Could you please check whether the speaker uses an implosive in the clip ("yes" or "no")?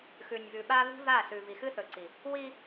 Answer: yes